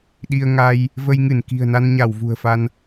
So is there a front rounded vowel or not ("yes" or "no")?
no